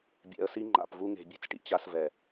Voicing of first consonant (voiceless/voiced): voiced